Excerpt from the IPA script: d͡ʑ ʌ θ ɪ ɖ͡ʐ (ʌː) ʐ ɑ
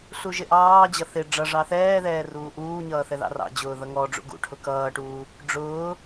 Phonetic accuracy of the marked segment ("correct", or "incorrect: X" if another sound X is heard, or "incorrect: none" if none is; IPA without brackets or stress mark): incorrect: ʌ